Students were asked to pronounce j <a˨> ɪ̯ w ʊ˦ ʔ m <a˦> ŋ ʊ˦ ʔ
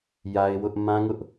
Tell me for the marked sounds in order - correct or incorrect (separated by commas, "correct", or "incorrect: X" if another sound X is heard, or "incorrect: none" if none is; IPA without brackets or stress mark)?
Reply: incorrect: a˦, incorrect: ã˦